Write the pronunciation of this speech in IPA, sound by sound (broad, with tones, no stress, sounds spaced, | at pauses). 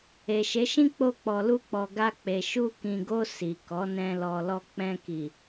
e˨ ʃ e˨˦ ʃ ĩ˦ k͡p o˧ k͡p ɔ˨ l u˧ k͡p ɔ˨ ɡ a˧ k͡p e˨ ʃ u˧ k ĩ˨ ɡ o˧ s i˨ k ɔ˨˦ n ɛ̃˧ l ɔ˨ l ɔ˧ k͡p ɛ̃˧ k i˨